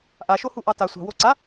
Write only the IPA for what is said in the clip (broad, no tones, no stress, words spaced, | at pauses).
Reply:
ʔaʃohuʔɑ ta sʷɑ̤wo ǀa